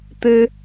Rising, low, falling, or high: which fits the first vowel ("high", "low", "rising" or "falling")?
high